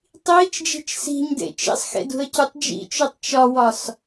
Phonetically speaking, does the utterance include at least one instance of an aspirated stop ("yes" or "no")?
no